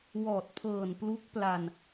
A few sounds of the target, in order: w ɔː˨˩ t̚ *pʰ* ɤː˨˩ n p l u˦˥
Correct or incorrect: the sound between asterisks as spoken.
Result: correct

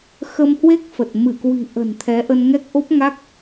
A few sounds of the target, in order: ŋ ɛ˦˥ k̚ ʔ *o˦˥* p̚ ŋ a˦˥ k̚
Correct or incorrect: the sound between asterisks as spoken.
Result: correct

